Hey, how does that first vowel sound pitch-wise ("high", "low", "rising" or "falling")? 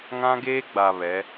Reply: high